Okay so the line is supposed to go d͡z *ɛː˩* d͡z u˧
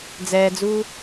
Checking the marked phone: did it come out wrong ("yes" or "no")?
no